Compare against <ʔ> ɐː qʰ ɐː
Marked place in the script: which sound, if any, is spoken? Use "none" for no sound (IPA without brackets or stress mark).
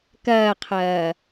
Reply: k